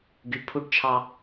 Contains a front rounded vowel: yes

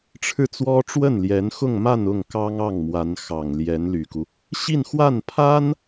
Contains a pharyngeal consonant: no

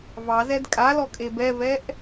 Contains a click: no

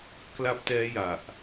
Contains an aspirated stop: no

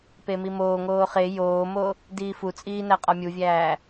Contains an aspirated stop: no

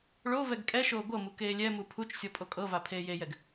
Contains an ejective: yes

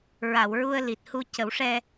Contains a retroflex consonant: yes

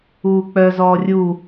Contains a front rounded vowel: yes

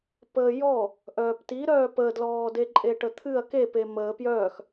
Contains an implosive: no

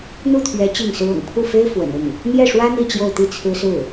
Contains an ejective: no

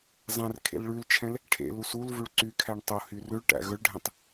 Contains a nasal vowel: yes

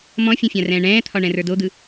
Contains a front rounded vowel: no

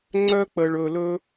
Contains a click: yes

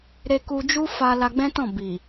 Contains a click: no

